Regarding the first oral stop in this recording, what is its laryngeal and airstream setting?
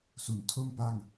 aspirated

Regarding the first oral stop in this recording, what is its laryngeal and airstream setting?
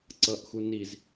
click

